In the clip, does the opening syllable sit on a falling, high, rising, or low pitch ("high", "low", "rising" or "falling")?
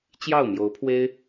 falling